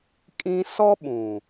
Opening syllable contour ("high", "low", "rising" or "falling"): high